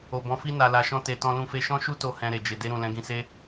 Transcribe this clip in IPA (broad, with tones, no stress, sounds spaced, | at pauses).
o˨ b ɔ̃˨˦ f i˦ n a˧ l a˧ ʃ ɔ̃˦ t e˧ t ɔ̃˦ l ũ˦ f e˦ ʃ ɔ̃˦ ʃ u˦ t o˧ h ɛ̃˧ ɾ e˨ d͡ʒ e˨ d e˧ ɾ ũ˨ l ɛ̃˨˦ ɡ ĩ˧ s e˦